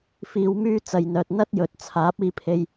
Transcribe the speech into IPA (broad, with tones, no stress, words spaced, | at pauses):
fiː˧w myː˧ t͡sɐ˨j n̪œː˨t̚n̪ɐ˥t̚jɵ˨t̚ t͡sʰaː˨˥p̚iː˧pʰe˧j